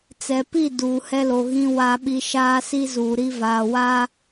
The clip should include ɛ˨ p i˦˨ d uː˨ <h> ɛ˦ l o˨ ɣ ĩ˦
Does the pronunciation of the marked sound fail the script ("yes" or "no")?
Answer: no